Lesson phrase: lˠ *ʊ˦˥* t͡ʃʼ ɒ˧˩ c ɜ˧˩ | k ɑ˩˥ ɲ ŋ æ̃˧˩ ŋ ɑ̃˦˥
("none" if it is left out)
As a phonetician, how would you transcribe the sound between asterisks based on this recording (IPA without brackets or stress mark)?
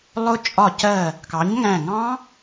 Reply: ʊ˦˥